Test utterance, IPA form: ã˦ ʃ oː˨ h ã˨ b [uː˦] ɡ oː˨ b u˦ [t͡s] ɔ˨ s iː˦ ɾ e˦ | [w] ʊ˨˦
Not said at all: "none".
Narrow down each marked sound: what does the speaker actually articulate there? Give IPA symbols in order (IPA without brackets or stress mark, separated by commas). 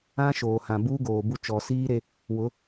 uː˦, t͡ʃ, w